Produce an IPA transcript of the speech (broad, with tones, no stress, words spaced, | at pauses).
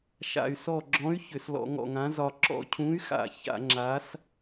ʃa̰˧˩y̯sɔ˧˩ɡ͡ǁɔ̃˨˥y̯ çʏ˧˩˧slɔ̰˧˩˧ŋɔ̰˧˩ŋã˨˥ zɒ˧˩ ǁɔ̰˧˩cʰũ˨˥y̯xa̰˧˩˧ ça̰˧˩˧ŋ͡ǁa˨˥s